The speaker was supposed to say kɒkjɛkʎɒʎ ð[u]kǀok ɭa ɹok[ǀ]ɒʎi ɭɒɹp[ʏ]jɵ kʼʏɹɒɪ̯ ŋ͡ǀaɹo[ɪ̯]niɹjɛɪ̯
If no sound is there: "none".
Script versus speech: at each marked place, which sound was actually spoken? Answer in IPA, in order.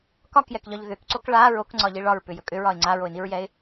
ʏ, ŋ͡ǀ, ʏ, ɪ̯

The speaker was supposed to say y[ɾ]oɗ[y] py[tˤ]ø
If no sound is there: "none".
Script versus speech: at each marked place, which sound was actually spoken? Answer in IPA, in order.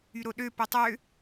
ɾ, ø, tˤ

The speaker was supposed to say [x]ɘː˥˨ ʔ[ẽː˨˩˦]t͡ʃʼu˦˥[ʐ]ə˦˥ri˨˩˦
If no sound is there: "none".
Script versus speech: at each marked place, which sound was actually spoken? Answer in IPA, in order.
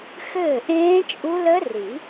x, ẽː˦˥, l

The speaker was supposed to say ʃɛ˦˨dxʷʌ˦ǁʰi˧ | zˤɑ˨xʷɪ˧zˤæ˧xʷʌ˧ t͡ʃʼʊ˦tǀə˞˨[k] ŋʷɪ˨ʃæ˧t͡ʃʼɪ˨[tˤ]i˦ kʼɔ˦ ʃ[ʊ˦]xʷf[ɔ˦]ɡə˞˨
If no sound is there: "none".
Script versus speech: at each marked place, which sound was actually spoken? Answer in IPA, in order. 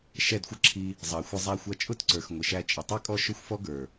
x, tˤ, ʊ˦, ɔ˦

